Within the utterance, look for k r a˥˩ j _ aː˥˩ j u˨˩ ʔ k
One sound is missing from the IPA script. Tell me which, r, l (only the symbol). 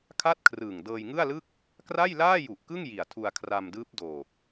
l